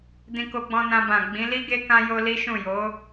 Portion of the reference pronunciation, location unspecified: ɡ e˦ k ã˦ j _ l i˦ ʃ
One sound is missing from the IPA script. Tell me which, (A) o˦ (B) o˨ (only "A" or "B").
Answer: A